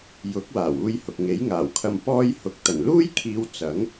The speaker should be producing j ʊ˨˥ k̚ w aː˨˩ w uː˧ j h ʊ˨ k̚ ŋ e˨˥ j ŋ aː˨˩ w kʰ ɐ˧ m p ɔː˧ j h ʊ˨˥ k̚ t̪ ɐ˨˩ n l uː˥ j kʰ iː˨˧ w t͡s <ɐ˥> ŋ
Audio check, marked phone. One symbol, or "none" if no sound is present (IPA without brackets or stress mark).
ɐ˨˥